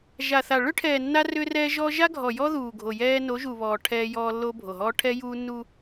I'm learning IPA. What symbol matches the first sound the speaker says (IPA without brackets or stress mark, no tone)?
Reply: ʒ